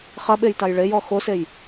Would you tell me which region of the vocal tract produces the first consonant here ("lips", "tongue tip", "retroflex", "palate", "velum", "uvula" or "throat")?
uvula